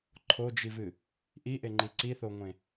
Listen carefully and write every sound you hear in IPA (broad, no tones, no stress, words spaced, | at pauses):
ǃʰod͡ʒivɨ | ʔiʔeŋ͡ǃi ǀiθoŋʷẽ